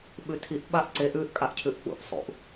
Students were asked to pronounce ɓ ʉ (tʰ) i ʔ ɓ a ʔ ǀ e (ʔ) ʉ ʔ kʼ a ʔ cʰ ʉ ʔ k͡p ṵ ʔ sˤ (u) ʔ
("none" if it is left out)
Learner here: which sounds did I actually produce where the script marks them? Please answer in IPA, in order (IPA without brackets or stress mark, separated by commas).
tʰ, ʔ, ṵ